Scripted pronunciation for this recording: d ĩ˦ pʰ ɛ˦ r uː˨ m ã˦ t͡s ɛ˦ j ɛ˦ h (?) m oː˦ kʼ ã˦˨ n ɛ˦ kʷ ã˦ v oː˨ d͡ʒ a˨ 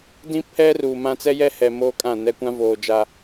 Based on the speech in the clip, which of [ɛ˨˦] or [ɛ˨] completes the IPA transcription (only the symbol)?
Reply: ɛ˨